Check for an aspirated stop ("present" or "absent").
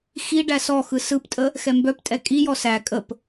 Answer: absent